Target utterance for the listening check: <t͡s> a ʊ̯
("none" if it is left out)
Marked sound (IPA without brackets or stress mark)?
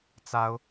t͡s